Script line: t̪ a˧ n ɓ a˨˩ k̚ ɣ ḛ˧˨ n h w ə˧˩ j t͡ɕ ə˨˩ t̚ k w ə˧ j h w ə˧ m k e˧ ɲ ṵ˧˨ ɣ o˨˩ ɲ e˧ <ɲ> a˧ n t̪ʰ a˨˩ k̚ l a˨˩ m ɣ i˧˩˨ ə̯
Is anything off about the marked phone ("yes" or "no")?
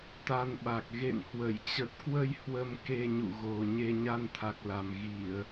no